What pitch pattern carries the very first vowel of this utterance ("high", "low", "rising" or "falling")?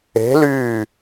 rising